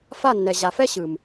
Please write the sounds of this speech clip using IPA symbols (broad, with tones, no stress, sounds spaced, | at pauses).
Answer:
f a˦˨ nː ɛ˨ ʑ a˨ f ɛ˦ ɕ ɯ˨ m